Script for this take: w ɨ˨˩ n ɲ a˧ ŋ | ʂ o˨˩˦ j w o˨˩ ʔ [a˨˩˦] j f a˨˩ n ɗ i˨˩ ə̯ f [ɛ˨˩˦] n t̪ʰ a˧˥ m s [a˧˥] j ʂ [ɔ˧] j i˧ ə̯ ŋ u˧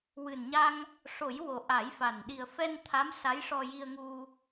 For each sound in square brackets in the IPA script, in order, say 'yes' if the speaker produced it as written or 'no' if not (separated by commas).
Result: yes, no, yes, yes